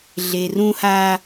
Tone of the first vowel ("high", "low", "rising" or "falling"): low